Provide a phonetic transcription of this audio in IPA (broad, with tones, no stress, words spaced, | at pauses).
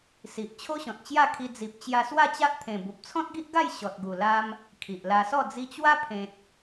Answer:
si˨ʔ t͡ɕʰo˦ɕɔ̃˨t̚t͡ɕja˥˧kʰi˧ d͡zi˨p̚t͡ɕja˧swa˥˧t͡ɕa˦ʔ t̪ʰẽ˨˩bu˨p̚t͡sʰɔ̃˦t̚ɡi˦ʔ ɡa˥˧jɕɔ˨t̚ɡu˨˩la˧m | kʰi˨ʔla˧sɔ˥˧ d͡zi˧t͡ɕwa˦pʰẽ˨t̚